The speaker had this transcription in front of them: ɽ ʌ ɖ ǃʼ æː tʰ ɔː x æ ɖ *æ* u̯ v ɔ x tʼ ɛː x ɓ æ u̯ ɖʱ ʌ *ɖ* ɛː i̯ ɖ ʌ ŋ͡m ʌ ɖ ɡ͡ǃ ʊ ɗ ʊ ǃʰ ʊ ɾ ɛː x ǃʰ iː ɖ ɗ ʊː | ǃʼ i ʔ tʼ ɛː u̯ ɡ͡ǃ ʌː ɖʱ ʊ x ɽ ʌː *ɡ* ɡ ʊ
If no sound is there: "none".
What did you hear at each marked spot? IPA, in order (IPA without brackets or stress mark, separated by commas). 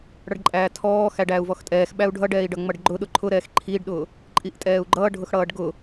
æː, ɖ, ɖ